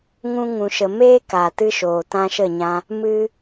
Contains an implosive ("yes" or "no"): no